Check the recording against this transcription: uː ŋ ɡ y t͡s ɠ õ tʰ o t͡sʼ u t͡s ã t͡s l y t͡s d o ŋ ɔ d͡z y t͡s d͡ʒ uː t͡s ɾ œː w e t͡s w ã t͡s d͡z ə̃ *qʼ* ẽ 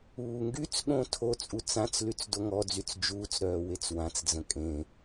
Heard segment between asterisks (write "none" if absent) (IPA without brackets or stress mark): kʼ